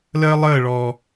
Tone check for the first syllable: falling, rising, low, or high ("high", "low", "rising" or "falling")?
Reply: high